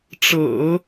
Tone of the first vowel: low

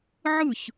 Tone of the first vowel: falling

